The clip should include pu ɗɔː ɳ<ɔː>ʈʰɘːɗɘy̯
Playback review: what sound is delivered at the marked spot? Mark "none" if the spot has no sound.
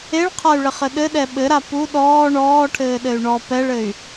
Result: ɔː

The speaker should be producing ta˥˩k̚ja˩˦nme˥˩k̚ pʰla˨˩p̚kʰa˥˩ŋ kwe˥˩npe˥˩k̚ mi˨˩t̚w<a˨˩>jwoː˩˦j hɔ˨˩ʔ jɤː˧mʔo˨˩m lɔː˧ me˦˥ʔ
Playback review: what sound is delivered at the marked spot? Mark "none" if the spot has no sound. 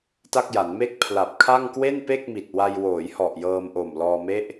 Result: a˧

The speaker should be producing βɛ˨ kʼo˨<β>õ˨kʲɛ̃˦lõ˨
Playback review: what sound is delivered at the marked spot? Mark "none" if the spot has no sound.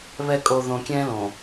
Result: ð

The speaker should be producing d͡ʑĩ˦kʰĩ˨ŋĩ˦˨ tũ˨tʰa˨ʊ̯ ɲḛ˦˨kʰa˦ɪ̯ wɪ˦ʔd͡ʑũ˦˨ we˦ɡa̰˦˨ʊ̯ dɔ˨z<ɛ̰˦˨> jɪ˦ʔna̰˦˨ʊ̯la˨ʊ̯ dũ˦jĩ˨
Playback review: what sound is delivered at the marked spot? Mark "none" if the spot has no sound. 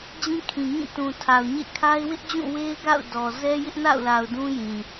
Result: ɛ˦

